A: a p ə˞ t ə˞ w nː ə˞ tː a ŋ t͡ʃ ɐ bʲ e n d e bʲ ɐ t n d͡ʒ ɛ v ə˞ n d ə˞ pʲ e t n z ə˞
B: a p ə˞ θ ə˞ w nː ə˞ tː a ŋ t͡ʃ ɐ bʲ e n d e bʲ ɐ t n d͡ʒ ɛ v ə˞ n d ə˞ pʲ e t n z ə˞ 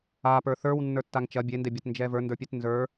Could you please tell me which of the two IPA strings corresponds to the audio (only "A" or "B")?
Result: B